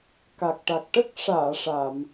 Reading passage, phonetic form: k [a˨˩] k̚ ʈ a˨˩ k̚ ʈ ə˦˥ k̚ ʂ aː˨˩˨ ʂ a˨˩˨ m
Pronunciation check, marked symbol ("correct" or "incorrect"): correct